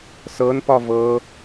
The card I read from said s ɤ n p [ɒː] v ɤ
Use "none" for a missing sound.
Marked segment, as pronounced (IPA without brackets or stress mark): ɒ